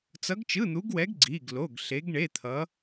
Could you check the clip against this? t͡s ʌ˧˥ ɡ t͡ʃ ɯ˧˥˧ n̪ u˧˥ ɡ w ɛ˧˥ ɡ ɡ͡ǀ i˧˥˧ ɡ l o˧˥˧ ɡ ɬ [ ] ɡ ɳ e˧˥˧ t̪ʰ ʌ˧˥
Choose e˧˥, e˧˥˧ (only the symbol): e˧˥